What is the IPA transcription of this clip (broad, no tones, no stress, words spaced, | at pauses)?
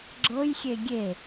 ɡ͡ǁɤj xʲeɡʲe